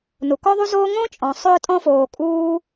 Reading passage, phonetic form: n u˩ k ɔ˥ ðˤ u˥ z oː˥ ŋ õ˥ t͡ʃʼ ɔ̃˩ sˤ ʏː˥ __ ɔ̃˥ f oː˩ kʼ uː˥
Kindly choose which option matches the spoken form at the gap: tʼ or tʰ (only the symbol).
tʼ